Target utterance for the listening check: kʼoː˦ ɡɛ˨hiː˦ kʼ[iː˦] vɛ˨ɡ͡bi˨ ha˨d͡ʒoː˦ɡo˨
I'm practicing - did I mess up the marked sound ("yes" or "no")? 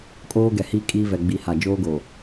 no